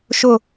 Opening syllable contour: falling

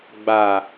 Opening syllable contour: low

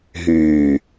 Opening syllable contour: low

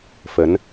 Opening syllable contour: rising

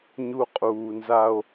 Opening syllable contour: high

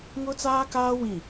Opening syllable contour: high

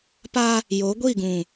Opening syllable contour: high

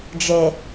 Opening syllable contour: low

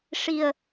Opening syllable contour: low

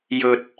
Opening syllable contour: low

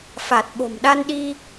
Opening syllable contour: low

